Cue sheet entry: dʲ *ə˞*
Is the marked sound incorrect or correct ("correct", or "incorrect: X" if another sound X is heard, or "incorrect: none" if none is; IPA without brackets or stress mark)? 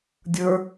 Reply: correct